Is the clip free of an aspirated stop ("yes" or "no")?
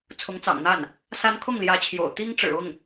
no